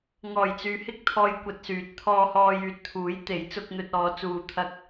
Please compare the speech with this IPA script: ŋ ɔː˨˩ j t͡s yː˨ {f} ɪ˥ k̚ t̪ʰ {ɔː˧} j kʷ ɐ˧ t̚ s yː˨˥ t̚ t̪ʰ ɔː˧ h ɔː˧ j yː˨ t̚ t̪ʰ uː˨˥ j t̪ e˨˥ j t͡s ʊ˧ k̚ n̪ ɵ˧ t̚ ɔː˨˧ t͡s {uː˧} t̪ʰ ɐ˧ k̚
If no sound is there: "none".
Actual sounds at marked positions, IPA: h, ɔː˧, uː˧

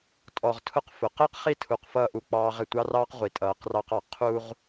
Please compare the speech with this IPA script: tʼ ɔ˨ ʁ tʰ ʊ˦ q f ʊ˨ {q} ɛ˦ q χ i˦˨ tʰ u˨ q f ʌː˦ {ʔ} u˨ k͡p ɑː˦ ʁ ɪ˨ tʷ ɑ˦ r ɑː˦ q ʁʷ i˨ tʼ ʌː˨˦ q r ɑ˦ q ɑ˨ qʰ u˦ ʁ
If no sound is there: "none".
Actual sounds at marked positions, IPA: q, ʔ

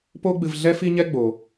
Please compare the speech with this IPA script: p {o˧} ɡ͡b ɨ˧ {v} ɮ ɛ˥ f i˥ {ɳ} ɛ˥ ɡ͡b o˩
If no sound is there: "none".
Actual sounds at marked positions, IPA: o˥, v, ɲ

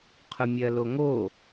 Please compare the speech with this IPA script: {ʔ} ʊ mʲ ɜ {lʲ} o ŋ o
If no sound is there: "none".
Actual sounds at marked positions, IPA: qʰ, l

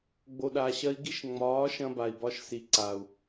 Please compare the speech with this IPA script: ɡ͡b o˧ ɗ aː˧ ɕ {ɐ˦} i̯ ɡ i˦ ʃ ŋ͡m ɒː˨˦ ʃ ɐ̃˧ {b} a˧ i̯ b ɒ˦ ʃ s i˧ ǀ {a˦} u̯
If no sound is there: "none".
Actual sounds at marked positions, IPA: ɐ˦, b, a˨

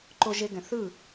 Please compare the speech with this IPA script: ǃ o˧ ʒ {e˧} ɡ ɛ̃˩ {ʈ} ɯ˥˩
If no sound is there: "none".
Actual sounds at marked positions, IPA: e˧, θ

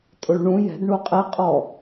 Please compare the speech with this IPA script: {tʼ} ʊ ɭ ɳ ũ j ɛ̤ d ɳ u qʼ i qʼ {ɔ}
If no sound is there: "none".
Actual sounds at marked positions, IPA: tʼ, ɔ

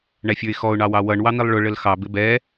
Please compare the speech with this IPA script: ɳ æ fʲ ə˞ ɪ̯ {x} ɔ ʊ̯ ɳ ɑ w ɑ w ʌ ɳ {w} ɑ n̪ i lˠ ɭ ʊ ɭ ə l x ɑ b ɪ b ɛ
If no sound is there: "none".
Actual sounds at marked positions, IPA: x, w

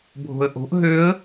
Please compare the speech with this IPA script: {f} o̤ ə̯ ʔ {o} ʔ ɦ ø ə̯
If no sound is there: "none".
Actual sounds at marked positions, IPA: bʱ, o̤

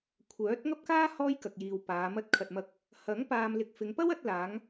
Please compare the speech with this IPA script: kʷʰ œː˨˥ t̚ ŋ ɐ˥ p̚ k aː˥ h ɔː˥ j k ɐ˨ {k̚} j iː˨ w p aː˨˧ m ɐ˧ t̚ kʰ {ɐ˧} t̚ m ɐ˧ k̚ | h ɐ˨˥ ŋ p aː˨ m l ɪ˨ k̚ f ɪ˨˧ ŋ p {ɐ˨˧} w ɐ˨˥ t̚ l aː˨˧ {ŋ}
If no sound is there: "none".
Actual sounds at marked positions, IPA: k̚, ɐ˨, ɐ˥, ŋ

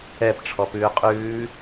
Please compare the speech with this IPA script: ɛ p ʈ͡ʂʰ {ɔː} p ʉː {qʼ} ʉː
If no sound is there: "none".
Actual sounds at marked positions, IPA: ɔ, qʼ

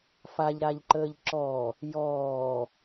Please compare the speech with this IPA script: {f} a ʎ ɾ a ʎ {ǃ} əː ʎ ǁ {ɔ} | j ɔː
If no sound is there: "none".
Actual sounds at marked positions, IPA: f, ǃ, ɔ

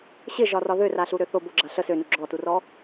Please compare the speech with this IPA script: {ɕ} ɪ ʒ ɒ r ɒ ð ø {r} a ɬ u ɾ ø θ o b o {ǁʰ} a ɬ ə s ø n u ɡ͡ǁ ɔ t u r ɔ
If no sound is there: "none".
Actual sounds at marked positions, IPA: ɕ, r, ɡ͡ǁ

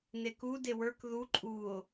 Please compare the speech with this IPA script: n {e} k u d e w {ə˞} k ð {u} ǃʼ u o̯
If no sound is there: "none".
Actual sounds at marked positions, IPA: e, ə˞, u

